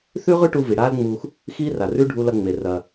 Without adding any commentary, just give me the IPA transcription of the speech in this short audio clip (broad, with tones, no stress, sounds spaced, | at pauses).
θ ʉ˥ ʁ ʉ˥ ʈ u˧ v i˩ ɽ aː˥ l ŋ͡m uː˧ x | x iː˥ r a˩ r ʉ˥ ɖʱ u˧ l ɐ˧ ŋ͡m e˩ r ɐ˩